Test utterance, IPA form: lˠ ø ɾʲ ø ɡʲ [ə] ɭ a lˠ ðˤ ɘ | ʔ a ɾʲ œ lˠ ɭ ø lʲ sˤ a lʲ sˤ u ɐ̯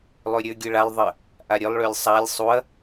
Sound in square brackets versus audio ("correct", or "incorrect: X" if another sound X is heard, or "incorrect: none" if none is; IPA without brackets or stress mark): incorrect: ɯ